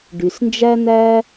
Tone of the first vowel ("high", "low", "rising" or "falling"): low